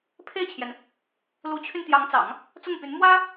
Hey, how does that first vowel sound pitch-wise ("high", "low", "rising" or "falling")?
falling